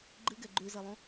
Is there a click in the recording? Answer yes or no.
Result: yes